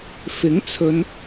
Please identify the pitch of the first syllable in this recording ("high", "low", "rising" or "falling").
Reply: rising